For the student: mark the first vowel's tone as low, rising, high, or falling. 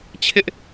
high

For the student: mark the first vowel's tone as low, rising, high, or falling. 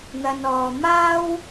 low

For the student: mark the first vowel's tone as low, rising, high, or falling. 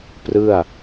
falling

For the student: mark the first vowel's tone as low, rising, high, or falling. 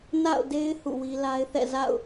falling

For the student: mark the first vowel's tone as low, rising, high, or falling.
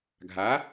rising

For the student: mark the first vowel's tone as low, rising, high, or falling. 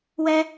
high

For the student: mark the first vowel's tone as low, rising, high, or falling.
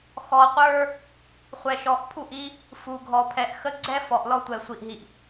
low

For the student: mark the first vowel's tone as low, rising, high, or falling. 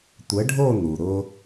rising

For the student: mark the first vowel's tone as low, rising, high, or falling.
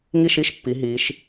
falling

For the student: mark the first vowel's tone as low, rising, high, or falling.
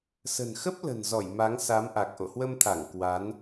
low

